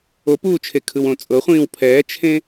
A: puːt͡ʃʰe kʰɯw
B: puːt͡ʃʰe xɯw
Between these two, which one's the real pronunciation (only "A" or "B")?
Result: A